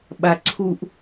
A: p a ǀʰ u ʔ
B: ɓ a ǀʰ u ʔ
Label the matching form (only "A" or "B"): B